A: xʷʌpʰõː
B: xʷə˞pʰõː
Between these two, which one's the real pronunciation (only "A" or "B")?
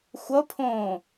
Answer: A